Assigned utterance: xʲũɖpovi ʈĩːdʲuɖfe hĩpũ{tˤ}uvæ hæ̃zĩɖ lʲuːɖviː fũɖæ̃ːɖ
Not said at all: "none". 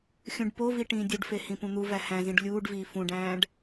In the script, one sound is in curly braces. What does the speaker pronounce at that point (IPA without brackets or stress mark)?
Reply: n̪